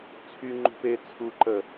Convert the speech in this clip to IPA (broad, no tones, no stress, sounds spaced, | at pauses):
t͡sʰ y ŋ͡ǃ ṳ p e t͡sʰ u ǃ ə